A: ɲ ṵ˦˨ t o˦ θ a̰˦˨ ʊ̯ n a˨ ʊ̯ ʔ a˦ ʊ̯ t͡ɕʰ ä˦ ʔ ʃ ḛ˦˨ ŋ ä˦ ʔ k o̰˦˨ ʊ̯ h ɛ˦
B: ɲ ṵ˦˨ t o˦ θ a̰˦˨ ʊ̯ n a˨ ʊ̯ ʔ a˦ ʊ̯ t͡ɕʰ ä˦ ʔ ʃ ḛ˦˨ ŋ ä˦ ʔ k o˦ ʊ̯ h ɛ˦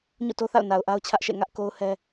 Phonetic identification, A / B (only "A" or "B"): B